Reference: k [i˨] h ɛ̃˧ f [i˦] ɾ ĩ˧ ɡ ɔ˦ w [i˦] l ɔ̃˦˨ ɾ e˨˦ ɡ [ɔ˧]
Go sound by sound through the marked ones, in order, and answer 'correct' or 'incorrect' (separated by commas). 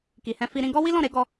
correct, incorrect, correct, correct